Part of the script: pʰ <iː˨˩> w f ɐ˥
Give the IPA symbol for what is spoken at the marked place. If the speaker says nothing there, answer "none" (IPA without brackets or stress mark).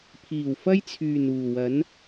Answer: iː˨˩